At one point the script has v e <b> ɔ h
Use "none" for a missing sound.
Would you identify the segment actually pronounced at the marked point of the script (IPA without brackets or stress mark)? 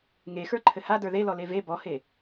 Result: b